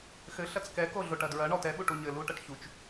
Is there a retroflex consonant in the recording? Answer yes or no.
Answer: yes